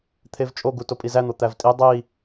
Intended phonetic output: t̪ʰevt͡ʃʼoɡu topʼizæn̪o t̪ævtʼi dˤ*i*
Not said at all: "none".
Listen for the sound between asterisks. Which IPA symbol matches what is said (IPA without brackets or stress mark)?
i